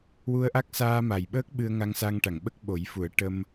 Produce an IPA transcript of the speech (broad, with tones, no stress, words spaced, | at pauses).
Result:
wu˧ə̯ʔa˦˥k̚ saː˧ma˨˩jɓəː˦˥k̚ ɓɨ˧ə̯ŋa˧ŋsa˧ŋʈa˨˩˨ŋ ɓə˦˥k̚ɓo˨˩˦jfu˨˩˦ə̯ ʈə˧m